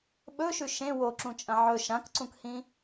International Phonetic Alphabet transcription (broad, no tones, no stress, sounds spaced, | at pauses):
ɓ ɵ ʃ ʉ ʃ ẽ w o ǁ ũ t͡ʃʼ ɐ̃ ʕ ɵ ʃ ã k ǀ ũ k h ĩ